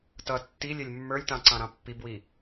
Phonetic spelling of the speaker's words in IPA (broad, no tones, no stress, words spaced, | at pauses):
tʌ tːilʲɛlʲ mːə˞lʲtɑ̃ǀɑ̃ɾɑ̃ pːibwi